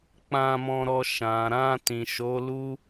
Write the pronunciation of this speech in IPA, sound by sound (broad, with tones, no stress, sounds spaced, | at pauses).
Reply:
k͡p ã˧ m ɔ̃˧ ɾ ɔ˧ ʃ ã˨ ɾ ã˧ t ĩ˨ ʃ o˨˦ l u˦